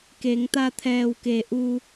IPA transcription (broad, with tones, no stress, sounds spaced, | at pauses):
k e˩˧ ŋ t̪ a˧ t̪ʰ ɛː˧˩ w k e˩˧ ʔ u˧